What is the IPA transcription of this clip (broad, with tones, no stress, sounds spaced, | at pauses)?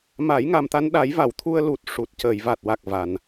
m a˨˩˦ j ŋ a˨˩ m t̪ a˧ n ɗ a˨˩˦ j v a˨˩˨ w t̪ʰ u˧ ə̯ l u˨˩ t̚ ʂ u˨˩ t̚ c əː˨˩˨ j v a˨˩ t̚ w a˨˩ k̚ v a˨˩ n